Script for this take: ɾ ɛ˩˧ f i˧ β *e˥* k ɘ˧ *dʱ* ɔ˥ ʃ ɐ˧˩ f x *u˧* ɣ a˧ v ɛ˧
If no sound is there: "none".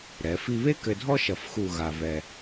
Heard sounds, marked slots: e˥, dʱ, u˥˧

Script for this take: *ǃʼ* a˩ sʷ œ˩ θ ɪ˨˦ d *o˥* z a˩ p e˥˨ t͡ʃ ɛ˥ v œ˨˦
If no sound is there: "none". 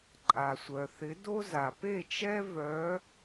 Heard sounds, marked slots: ǃʼ, o˥

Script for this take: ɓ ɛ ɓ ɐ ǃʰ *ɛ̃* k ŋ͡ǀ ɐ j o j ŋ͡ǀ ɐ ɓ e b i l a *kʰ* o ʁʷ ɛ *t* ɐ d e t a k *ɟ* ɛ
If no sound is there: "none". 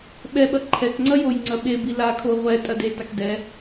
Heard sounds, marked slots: ɛ, kʰ, tʼ, d

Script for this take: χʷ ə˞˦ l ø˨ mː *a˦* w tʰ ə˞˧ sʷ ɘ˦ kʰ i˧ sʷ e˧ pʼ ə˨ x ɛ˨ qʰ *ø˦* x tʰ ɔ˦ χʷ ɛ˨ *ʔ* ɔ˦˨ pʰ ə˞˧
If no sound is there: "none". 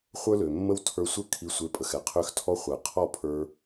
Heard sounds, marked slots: ə˦, ø˦, qʰ

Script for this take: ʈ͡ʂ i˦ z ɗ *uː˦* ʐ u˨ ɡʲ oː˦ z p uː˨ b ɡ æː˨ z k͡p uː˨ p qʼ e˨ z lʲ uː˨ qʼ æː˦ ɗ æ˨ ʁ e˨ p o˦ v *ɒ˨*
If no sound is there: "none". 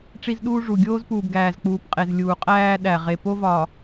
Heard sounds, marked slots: uː˦, ɒ˨

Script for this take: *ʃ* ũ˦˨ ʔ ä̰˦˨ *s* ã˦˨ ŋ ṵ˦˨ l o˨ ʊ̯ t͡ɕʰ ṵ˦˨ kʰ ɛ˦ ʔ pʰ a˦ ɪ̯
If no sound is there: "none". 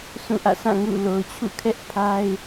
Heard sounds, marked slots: s, s

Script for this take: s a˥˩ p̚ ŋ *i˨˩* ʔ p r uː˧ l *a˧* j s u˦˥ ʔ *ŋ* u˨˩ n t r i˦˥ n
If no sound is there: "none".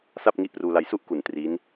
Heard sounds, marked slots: i˦˥, a˧, k

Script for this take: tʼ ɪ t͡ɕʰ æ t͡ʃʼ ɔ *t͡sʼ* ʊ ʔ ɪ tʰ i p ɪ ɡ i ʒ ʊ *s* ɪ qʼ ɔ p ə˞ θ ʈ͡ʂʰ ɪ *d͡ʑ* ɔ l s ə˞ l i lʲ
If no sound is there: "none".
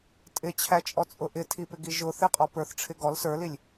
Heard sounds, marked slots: t͡sʼ, θ, ɡ

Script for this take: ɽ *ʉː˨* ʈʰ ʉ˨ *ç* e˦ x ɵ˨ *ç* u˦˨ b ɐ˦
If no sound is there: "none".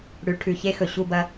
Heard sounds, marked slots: ʉ˨, ç, ɕ

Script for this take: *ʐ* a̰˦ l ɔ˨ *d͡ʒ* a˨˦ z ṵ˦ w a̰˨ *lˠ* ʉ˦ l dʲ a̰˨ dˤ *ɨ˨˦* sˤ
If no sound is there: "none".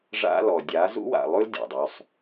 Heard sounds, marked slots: ʐ, dʲ, lˠ, ʉ˨˦

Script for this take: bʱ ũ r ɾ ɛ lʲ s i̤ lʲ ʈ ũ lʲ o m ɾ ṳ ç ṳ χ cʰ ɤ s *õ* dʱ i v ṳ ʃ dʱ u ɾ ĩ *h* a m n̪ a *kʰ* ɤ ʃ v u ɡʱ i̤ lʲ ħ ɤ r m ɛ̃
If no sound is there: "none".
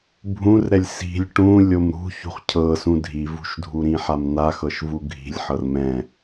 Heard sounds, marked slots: ũ, ħ, x

